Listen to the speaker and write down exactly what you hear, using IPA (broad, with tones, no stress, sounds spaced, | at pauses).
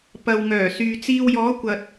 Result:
p ɐ˨ w ŋ œː˨˩ s yː˨ t͡s iː˧ w j ɔː˨˥ kʷ ɐ˨ t̚